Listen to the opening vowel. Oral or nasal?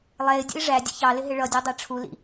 oral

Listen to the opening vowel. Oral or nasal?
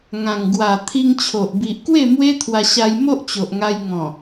nasal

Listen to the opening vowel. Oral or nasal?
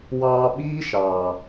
oral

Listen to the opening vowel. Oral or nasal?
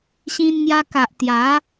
nasal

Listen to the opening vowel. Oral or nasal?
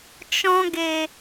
nasal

